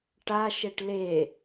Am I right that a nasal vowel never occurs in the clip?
yes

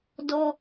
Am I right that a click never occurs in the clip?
yes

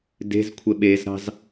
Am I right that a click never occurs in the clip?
yes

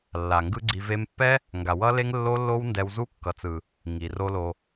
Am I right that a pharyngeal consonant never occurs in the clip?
yes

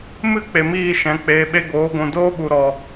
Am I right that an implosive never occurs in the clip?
no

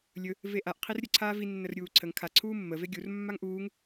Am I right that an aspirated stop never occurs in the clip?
no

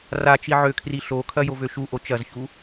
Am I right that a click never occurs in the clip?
yes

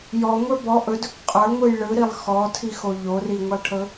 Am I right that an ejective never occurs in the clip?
no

